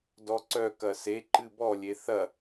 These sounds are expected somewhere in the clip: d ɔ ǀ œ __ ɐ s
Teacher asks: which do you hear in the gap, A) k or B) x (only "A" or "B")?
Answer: A